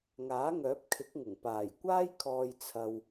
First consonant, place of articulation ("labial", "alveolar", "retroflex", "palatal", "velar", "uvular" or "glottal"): velar